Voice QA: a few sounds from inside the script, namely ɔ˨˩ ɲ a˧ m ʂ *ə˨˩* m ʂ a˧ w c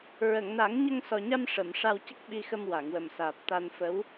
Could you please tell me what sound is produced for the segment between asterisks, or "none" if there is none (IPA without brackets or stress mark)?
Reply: ə˨˩˨